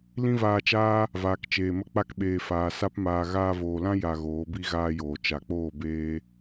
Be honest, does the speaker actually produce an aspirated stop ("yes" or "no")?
no